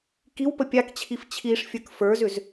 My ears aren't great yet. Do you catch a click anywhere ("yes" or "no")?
no